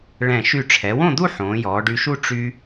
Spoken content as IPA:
ɭɛ̃˧˩ ʃy˧˩ʈ͡ʂʰɛ˩˧wõ˥˧d̪u˥˧ ħõː˩˧jɔː˩˧ɖy˧ʃu˥˧ ʈ͡ʂy˧

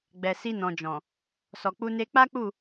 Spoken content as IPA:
ɡ͡bɛ˨si˧ nɔ̃˨d͡ʒɔ̃˨ | sɔ˨k͡pu˧ne˧ k͡pa˦k͡pu˦˨

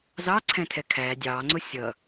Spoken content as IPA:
zɑǀʰɛ̃tʰɛ kʰæ dʲɑːŋ͡ǀʊ sʲʌ

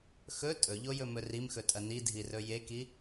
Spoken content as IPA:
xɵ tʼɵʎojɵmɵ rimxɵtʼɐ nidʱirɵ jeki

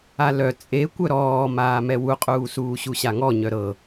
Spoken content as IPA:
alœ t͡sʼe kʷœɾɔːmaːmɛ wuqʼuːsuː ɕuɕaŋɔ ɲœɾɤ

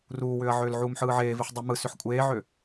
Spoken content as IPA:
ruːwʏːɐ̯ʕʏːlʕuːm ħɯːʕeːviħ dˤumɯ sʏħkʷʼeːʕʏ

